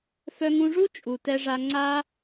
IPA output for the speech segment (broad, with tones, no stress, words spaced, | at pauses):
fœ˧ŋũ˧ʐu˦ t͡ʃʼu˨tɛ˧ʐa˧ ŋ͡ǀa˧